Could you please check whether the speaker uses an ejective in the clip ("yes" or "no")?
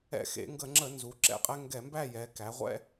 yes